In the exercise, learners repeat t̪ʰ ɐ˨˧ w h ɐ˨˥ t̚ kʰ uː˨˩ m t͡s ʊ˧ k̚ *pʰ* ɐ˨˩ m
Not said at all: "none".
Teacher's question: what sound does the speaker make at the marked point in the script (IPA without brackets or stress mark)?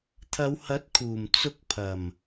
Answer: pʰ